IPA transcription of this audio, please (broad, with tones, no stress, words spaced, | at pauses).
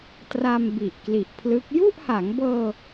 tra˧m bi˨˩ʔkli˨˩ʔpʰlɯ˦˥k̚ ju˥˩ʔha˩˦ŋbɤː˧